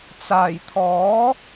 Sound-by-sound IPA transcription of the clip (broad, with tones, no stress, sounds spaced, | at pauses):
t͡s aː˨˩ j t̪ʰ ɔː˨˥